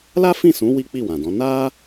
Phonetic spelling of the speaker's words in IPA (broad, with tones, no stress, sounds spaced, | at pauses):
l a˦ f ĩ˦˨ s ũ˨˦ w i˦ k͡p i˦˨ w ã˨ d ɔ̃˨˦ n a˦